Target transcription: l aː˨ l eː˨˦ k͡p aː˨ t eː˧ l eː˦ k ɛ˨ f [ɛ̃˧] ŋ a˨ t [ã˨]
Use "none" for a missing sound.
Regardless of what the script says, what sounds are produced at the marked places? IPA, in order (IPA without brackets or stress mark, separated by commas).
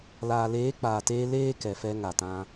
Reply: ɛ˧, ã˧